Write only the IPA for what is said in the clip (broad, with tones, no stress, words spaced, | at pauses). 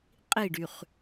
qʼi˦˨ɖy˨χ